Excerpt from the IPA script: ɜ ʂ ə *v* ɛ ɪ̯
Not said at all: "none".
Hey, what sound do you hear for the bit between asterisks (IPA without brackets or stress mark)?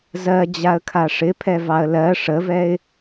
v